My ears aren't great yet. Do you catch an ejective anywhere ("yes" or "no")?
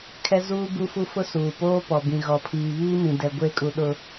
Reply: yes